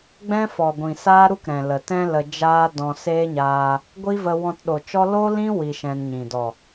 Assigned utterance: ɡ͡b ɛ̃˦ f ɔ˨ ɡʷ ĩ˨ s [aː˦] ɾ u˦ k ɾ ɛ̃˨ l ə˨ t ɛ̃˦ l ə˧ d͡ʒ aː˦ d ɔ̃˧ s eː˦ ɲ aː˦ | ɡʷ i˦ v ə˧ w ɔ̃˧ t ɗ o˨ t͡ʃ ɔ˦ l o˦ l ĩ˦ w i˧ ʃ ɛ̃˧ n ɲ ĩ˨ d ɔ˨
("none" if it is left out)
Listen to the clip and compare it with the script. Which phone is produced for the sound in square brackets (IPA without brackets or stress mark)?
aː˦